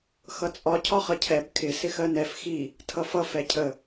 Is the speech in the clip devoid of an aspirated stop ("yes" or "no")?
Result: no